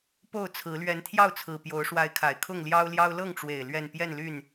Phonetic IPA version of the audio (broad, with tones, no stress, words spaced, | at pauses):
po˥˨ʊ̯t͡sʰɹ̩˨˦ lɥɛ˨˦nt̪ʰjɑ˥˨ʊ̯t͡sʰɹ̩˨˩ pjo˨˦ʊ̯ʂwa˨˦ɪ̯kʰa˨˩ɪ̯ kʰʊ˥˨ŋljɑ˦ʊ̯ljɑ˦ʊ̯ lɤ˥˨ŋʈ͡ʂwe˨˩ɪ̯ lɥɛ˥˨n pjɛ˥˨nly˥˨n